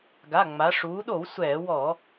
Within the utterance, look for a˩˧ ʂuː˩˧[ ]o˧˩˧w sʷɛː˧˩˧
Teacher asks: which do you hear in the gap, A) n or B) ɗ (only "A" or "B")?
B